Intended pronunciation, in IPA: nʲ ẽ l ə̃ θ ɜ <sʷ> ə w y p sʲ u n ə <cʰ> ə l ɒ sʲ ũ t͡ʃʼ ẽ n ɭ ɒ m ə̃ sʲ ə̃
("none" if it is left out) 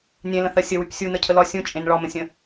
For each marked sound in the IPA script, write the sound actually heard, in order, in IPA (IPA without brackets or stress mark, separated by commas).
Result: sʲ, cʰ